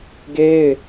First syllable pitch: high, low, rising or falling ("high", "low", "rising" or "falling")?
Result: high